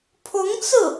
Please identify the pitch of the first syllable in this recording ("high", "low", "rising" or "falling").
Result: rising